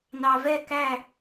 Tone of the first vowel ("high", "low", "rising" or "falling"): low